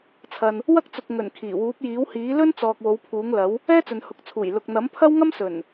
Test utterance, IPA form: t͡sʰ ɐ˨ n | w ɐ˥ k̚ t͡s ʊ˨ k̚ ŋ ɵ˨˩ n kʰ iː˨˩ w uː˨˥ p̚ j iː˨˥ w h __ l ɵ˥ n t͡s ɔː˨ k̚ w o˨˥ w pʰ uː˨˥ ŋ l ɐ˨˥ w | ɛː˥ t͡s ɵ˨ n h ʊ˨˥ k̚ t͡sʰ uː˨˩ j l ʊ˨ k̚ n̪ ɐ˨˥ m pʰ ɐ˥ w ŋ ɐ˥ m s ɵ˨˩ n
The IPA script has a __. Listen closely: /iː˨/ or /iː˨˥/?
iː˨˥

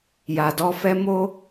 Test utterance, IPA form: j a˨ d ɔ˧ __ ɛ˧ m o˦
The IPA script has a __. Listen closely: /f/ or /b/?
f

